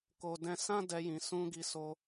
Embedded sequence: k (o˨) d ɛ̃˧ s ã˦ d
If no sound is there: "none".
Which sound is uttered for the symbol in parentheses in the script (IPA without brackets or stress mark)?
o˨